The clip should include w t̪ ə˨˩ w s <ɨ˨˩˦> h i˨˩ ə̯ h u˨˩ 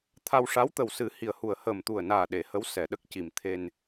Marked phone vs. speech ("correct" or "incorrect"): correct